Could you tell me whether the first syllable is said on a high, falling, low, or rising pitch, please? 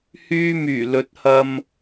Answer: high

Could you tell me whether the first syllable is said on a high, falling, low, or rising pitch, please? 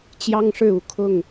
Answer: high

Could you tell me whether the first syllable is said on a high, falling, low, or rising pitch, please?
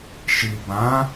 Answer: low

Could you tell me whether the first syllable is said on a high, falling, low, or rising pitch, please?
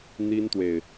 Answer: high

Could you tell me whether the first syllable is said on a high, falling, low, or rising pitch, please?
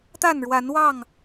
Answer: falling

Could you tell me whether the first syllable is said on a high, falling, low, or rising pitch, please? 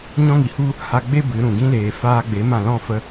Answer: high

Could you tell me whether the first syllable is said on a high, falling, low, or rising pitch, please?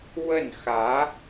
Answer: falling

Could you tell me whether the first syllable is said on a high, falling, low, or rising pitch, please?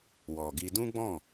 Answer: low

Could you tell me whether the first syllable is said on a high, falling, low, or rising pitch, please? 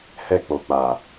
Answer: falling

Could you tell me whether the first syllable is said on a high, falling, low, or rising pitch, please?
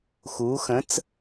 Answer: rising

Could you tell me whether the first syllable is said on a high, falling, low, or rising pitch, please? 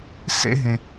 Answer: high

